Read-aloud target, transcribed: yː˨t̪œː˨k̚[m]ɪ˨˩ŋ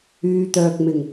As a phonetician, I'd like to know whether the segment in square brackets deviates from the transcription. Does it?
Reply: no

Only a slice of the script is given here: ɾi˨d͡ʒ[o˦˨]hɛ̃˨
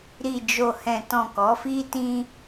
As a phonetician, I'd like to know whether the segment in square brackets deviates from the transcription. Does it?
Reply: yes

